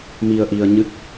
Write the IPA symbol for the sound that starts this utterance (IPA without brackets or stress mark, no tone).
m